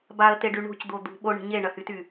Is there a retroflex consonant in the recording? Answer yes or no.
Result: yes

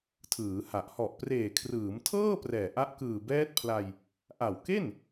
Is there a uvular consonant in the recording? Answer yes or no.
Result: no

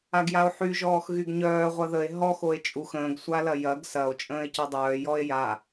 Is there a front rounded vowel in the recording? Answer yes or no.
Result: yes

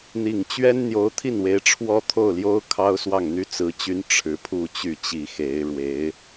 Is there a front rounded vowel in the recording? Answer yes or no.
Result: yes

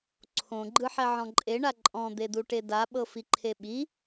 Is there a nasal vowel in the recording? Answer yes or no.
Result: yes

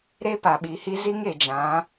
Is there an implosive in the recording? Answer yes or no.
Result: yes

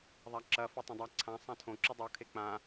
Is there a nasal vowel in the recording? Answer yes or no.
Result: yes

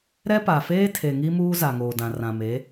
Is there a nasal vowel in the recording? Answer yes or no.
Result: yes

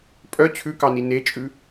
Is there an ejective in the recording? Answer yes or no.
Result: yes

